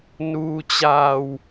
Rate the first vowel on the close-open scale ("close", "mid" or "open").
close